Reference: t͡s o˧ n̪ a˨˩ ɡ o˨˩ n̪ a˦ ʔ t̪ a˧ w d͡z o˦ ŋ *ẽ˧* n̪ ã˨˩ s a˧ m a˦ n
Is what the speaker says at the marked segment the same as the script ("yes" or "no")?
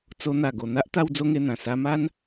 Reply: no